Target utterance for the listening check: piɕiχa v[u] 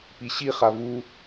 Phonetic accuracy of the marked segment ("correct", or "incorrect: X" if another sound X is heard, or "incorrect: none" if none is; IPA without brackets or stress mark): correct